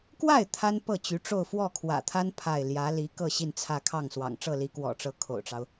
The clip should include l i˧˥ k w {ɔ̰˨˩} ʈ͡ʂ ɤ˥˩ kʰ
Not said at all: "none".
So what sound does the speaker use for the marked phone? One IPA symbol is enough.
ɔ̰˨˩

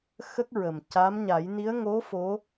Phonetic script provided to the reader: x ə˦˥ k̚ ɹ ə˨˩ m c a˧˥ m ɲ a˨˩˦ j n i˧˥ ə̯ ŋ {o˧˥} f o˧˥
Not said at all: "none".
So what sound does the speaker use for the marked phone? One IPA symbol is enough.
o˧˥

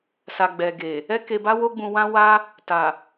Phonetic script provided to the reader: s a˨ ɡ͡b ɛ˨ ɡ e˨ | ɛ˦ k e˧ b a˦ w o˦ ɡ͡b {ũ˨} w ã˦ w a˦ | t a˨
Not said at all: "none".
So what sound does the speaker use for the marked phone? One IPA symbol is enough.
ũ˧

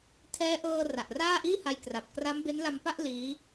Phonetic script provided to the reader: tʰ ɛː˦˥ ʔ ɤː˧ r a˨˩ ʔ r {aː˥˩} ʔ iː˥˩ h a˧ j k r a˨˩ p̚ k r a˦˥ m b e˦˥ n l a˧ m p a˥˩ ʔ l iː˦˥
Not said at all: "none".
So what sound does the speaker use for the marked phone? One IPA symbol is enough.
aː˥˩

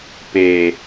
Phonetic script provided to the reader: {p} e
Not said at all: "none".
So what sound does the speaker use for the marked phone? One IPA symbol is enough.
p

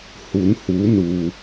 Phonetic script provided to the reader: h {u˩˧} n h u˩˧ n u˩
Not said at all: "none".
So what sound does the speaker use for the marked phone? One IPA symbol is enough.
u˩˧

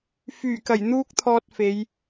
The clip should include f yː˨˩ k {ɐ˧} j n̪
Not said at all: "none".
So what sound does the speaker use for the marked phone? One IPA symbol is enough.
ɐ˨˩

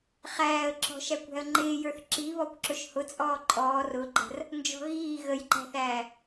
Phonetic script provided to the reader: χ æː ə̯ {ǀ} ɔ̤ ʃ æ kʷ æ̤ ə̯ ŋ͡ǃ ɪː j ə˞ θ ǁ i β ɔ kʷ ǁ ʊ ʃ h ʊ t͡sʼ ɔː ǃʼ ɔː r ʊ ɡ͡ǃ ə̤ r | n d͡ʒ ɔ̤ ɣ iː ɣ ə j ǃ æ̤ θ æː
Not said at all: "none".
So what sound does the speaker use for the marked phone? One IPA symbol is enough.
ǁ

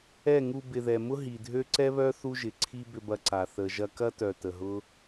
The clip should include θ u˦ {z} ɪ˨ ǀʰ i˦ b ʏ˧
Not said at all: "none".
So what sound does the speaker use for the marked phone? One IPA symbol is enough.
ʒ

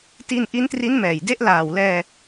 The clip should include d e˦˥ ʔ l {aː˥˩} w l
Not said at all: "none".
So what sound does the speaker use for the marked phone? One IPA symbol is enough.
aː˨˩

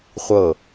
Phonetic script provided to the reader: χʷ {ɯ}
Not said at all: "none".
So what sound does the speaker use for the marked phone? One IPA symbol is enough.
ɤ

